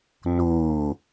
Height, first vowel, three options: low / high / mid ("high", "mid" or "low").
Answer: high